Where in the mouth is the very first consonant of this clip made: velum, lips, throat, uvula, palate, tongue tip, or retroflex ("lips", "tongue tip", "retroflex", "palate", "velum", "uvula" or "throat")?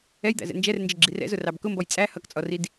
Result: palate